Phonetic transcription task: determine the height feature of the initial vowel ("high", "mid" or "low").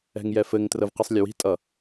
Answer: mid